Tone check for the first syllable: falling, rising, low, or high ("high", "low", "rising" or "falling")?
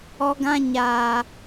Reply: high